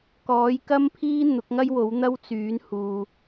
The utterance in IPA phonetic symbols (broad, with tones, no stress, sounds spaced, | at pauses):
k ɔː˨˥ j k ɐ˥ m pʰ iː˥ n̪ ʊ˨˥ k̚ ŋ ɐ˥ j w o˨˥ w n̪ ɐ˥ w t͡s yː˨˥ n h uː˧